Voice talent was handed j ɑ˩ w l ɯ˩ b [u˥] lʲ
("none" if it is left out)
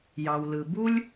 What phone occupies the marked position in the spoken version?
u˥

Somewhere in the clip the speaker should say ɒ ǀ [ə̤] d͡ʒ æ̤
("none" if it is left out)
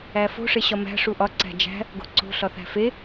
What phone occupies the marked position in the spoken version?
æ̤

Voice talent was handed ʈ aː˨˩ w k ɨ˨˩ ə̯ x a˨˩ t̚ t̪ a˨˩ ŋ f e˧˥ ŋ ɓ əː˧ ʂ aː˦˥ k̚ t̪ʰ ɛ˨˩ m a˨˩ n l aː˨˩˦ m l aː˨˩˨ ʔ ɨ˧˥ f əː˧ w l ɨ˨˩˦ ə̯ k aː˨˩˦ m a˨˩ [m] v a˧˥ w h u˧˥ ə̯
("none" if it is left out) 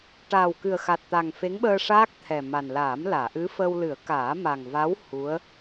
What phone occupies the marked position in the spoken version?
ŋ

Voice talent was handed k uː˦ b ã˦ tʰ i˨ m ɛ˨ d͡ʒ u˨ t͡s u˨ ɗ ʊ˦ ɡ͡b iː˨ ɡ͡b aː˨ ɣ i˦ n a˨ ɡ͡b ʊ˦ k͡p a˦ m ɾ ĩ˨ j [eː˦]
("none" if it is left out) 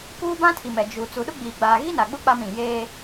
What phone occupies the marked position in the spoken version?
eː˦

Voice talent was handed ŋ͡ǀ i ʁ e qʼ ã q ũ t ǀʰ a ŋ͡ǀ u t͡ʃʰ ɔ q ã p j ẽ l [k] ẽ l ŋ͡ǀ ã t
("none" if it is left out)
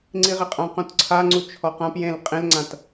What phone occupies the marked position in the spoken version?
qʼ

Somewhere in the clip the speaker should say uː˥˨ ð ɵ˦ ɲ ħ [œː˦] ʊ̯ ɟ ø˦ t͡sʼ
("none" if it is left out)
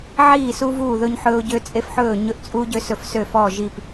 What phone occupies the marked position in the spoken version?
ɵː˦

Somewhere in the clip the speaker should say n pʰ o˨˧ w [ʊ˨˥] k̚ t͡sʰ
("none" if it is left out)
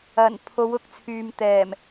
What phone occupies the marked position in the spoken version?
ʊ˨˥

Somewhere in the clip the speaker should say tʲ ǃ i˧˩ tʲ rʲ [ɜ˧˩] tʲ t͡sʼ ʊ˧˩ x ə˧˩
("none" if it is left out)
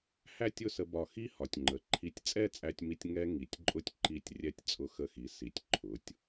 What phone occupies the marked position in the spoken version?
ɛ˧˩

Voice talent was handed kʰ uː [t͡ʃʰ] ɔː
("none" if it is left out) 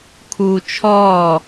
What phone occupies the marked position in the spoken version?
t͡ʃʰ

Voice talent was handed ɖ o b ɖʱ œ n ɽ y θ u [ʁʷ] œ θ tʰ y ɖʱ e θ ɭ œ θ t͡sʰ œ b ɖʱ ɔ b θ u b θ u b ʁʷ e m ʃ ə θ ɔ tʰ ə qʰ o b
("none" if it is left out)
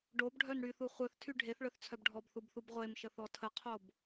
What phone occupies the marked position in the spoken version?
χʷ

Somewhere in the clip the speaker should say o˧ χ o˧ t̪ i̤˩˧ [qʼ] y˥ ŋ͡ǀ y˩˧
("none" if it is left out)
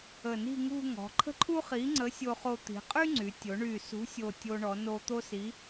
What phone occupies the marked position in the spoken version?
qʼ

